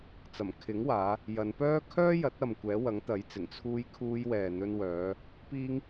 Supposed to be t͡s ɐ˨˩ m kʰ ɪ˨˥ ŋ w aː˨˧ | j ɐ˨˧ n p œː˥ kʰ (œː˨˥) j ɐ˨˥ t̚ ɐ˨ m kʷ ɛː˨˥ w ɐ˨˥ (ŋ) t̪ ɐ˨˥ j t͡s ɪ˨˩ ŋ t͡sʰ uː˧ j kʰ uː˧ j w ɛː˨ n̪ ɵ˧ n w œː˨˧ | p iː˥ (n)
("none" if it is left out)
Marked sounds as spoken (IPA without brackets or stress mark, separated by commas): œː˥, ŋ, ŋ